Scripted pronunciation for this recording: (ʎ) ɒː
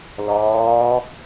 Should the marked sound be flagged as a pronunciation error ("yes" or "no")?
yes